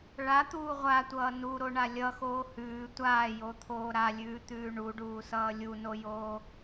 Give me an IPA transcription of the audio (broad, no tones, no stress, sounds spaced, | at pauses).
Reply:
ɭ a t̪ uː ʁʷ a tʷ ʌː n u ɾ o ɳ a lʲ ʌ x oː h ʉː tʷ aː j o t̪ʰ oː ɾ a lʲ ʉː t̪ ʉː ɳ u ɖ uː s ʌː lʲ u n o j oː